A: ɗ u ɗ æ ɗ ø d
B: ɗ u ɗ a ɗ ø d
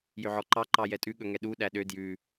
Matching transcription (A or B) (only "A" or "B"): A